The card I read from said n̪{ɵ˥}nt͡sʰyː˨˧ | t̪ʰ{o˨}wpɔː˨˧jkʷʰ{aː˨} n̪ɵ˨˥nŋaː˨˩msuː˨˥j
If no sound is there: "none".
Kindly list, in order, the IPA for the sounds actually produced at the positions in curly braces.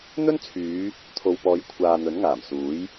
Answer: ɵ˥, o˨, aː˨

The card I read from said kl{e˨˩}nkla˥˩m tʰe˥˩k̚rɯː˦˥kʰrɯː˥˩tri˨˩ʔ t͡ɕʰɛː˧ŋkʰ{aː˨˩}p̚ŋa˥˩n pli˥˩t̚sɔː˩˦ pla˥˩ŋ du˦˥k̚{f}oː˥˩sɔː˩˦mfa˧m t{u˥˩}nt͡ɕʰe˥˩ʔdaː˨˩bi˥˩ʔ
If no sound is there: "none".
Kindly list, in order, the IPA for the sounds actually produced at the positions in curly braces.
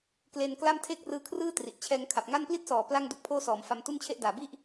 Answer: e˧, a˨˩, pʰ, u˥˩

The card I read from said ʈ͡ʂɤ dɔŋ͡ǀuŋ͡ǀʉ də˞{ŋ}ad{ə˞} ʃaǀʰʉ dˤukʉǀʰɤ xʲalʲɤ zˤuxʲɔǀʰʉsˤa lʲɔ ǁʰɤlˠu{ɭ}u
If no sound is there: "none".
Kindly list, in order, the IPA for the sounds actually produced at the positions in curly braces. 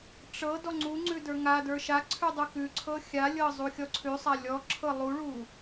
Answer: ŋ, ə˞, ɭ

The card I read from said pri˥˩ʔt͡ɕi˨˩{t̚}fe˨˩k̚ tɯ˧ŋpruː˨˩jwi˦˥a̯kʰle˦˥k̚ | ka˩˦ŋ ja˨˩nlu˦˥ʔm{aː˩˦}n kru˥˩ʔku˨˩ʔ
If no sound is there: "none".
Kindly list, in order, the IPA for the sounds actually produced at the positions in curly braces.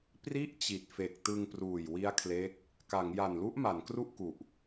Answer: t̚, a˩˦

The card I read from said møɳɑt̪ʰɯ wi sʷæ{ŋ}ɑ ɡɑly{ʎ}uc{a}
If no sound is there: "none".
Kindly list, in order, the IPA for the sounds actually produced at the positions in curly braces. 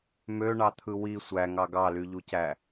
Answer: ŋ, ʎ, æ

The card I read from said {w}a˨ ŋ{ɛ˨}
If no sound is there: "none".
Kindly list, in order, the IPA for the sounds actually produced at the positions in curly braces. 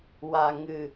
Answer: w, ɨ˨

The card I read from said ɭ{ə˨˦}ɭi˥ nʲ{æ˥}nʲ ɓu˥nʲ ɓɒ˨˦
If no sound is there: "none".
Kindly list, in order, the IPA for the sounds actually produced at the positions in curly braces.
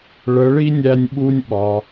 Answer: ə˨˦, æ˥

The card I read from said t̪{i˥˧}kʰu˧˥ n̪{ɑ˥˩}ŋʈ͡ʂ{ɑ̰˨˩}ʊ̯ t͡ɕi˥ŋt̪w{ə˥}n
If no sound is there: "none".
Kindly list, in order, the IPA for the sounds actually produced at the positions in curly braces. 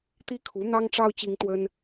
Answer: i˥, ɑ˥, ɑ˥, ə˥

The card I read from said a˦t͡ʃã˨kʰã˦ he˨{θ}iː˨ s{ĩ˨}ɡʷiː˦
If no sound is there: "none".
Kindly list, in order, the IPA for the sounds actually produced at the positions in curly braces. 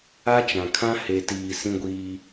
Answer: t, ĩ˦

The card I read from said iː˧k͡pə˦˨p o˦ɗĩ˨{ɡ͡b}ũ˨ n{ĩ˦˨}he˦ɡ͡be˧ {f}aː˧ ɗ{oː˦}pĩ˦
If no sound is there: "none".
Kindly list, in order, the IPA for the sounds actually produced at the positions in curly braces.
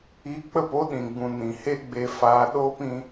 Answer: ɡ͡b, ĩ˨, f, oː˦

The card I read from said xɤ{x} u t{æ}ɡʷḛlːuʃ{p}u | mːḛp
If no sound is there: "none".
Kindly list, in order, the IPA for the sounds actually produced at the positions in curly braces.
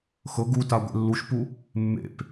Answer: ɡ, a, p

